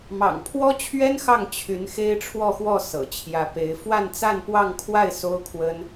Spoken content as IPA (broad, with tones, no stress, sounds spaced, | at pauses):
m ɑ̰˨˩ ŋ pʰ w ɔ˥ t͡ɕʰ ɥ ɛ˥ n x ɑ˥˩ ŋ t͡ɕʰ y˧˥ n x e˥ ɪ̯ ʈ͡ʂʰ w ɔ˥˧ x w ɔ˥˩ s ɤ̰˨˩ t͡ɕʰ j ä˧˥ p e˧˥ ɪ̯ f w a˥˧ n t͡s a˥˧ n p w ɑ˥˧ ŋ kʰ w a˥˩ ɪ̯ s o˥ ʊ̯ kʰ w ə˥ n